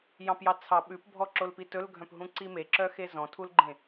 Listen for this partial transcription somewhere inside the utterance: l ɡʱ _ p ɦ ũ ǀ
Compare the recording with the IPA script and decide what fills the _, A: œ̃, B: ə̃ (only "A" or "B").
A